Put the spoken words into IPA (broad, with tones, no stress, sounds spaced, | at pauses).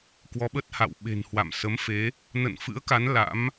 k w ɔ˨˦ ɓ ə˦˥ t̚ h a̰˧˨ w ɓ e̤˨˩ n h w a̰˧˨ m s ə˨˦ m f e˨˦ | n ə̰˧˨ n f ɨ̰˧˥ ə̯ k a˨˦ n l a̰˧˥ m